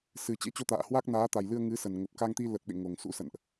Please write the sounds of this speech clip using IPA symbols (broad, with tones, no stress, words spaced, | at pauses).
sɨ˨˩ t͡ɕḛ˧˥t͡ɕo˧t̪a̰ː˧˨ hwa˦˥k̚naː˨˦t̪a˨˩jlɨ˧ə̯ ŋɨ˨˦sə˨˩nŋə˨˩p̚ ka˧ŋt̪i˧ lə˨˩t̚ɓḛ˧˨ ŋo˨˩ŋ sṵ˧˥sə̰˧˨nʔ